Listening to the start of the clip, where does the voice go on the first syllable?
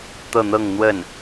falling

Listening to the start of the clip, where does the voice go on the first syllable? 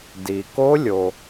low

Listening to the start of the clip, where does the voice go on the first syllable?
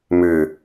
low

